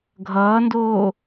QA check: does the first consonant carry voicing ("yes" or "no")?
yes